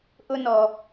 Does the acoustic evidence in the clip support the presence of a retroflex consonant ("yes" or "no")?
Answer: no